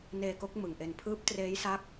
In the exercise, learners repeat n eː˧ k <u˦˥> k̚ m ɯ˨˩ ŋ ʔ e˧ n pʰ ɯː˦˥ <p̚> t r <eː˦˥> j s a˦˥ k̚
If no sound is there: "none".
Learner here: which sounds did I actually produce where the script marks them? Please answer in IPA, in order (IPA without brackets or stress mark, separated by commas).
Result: o˦˥, p̚, eː˦˥